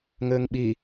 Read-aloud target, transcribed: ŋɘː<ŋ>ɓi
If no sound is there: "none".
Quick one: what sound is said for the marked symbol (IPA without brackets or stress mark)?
ŋ